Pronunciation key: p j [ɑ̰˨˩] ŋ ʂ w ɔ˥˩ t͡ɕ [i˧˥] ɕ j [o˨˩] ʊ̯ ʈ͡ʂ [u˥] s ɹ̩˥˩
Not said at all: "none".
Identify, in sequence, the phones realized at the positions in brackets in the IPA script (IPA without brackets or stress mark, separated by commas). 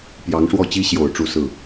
ɑ˧˥, i˥, o˨˩, u˥˧